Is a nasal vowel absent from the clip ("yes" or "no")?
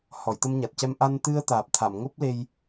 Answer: yes